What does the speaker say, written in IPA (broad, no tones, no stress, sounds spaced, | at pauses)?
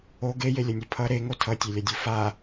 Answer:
o ɡ e j e lʲ ʌ nʲ ɯ pʰ ʌ ɾ e ŋ o tʰ ʌ tʲ e lʲ ʌ dʲ ɯ f a